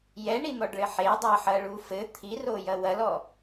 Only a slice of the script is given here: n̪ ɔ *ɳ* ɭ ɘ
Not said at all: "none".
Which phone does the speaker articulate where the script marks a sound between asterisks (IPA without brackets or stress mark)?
ɖ